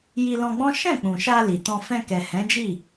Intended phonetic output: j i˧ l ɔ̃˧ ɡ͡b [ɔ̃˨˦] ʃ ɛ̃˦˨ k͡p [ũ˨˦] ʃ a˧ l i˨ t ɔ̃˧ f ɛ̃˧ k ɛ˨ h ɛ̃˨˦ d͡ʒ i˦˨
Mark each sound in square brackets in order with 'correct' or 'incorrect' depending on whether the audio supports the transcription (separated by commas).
incorrect, incorrect